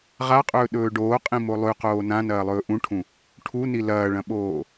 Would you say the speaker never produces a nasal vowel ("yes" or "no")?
no